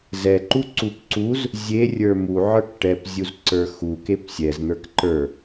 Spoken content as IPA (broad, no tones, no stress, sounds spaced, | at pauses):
z ɛ ǃ u ǀ u p ǀ u z | zʲ e rʲ ə˞ m u ʕ ə˞ k ʈ ɛ p zʲ u z ǀ ə˞ x u k e p sʲ ɛ z n̪ ə˞ k ǃ ə˞